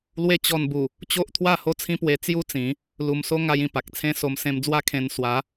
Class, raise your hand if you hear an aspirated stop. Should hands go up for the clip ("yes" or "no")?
yes